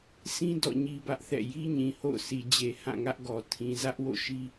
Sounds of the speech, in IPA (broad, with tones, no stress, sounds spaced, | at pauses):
sʰ ĩ˦ d ɔ̰˦˨ ɲ i˦ b ä˦ ʔ θ ɛ̰˦˨ j i˦ ɲ ĩ˨ h o̰˦˨ ʊ̯ sʰ i˨ d͡ʑ e˨ h ã˦˨ ŋ ä˦ ʔ ɡ ɔ˨ tʰ ĩ˨ z ä˦ ʔ w o̰˦˨ ʃ i˦